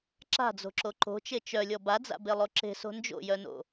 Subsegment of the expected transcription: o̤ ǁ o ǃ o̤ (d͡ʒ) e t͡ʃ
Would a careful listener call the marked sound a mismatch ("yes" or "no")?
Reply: yes